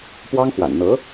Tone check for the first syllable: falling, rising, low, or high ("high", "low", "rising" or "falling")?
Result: high